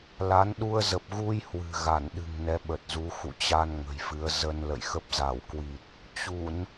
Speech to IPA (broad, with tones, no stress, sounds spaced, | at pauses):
l a˨˦ n ɗ u˧ ə̯ z ə˨˩ p̚ ɣ u˧ j h w ɨ̤˨˩ ɣ a˧˩ n ɗ ɨ̤˨˩ ŋ n ɛ˨˦ ɓ ə˨˩ t̚ z u˨˦ x ṵ˧˨ t͡ɕ a˧ n ŋ ə̤˨˩ j f ɨ˨˦ ə̯ z ə˧ n l ə̰˧˨ j x ə˦˥ p̚ z a˧˩ w k w i˨˩ t̚ | t͡ɕ u˧˩˨ n